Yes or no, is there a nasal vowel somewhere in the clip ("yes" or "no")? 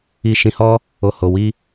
yes